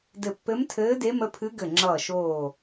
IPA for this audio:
dɘ˧˩pːɘ˧˥mtʰɘː˧˥ de˧˥mə˧˥pʰɨ˧˥ ɡɘ˧˩ŋ͡ǁʌː˧˩ʃoː˧˩

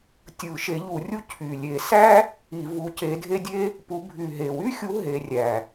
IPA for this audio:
tʲɯ˧˩˧ʃe˨˦ʎu˧˩˧rʲu˥ cʰy˨˩lʲe˧˩˧sæ˥ | i˧˩˧vu˨˦ce˨˦dʱe˥ dʲe˥ | pu˨˦ bʱy˨˩ɦe˨˩wy˥xʲu˨˦ ɦe˨˦rʲæ˨˩

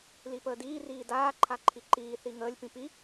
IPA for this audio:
lipəːdiː riːdaː ǃʰaǃʰiǃiː θiŋəːlʲ pĩpi

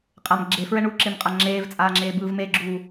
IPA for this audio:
qʼam ɡ͡ǁefɹɛ ɳuǁemqʼa ŋ͡ǁeːvt͡sʼaːŋ͡ǁeːbɯːv meɡ͡ǁuː

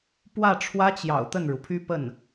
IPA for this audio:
pwä˥˩ʈ͡ʂʰwä˥t͡ɕjɑ̰˨˩ʊ̯ t̪ə˥˩nɻu˩pʰy˥pə˥˩n

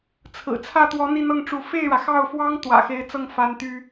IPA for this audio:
t͡sʰɹ̩˨˩t͡sʰä˥˩t̪wɔ˧˥ n̪i˥˧n̪ɤ˥˩ŋʈ͡ʂu˧˥ fe˥˩ɪ̯ɻä˩xɑ˥˩ʊ̯fwɑ˥ŋ t̪wä̰˨˩xe˧˥ɪ̯t͡sɤ˥˩ŋ fa˥nt̪y˥

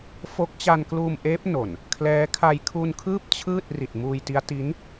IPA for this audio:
fo˦˥k̚t͡ɕa˧nkluː˧mʔeː˦˥p̚ no˨˩n | kʰlɛː˦˥kʰa˧j kʰu˧nkʰɯː˥˩p̚ t͡ɕʰɯː˥˩t̚ ri˨˩t̚muː˧jti˦˥a̯ ti˦˥n

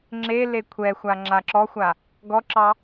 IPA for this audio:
ŋ͡ǁe lekʷʰɛxʷa ŋ͡ǁaǁɔxʷa | ɡɔǁɑ

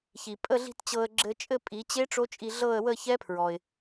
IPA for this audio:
çi˩ pʼə˥˧ɮi̤˥˧t t͡ɕɤ˧ə̯ɡ͡ǁɘ˧t͡ʃʼɘ˥˧ pʼi˩˧t͡ɕe˦˥ ʈ͡ʂo˦˥t͡ʃʼi˧ɮɤ˥˧ə̯ wə˥˧çɛ˦˥pʰɹɔ˩ɪ̯

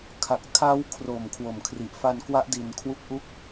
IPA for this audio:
kʰa˨˩k̚ tʰa˦˥w kʰro˨˩m kʰwo˨˩mkʰri˨˩ʔfa˧nkwa˦˥ʔ di˧nkʰwu˥˩k̚ʔu˥˩k̚

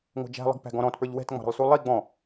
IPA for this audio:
ŋʷɑ̤d͡ʒæ̤lˠə̤ɡ pæ̤ɡɔ̃ɾɔ̃tpə˞ʎ wɛ̤tŋ͡mɑ̤ɾə̤lˠsu lˠi ɡ͡bɔ̃

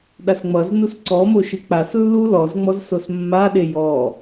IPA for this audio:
ɗasŋ͡mʌznus ǀɔmo ʃɨk͡paslːu lɔzŋ͡mɔz sosmːaɗe jɔ

